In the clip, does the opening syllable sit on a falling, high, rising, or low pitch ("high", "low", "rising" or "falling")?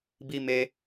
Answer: high